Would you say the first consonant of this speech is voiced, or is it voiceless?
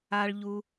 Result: voiced